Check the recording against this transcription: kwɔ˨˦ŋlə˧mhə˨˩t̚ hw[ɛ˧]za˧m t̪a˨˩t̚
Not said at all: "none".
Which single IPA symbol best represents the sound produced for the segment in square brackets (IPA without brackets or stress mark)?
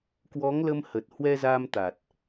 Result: ɛ˧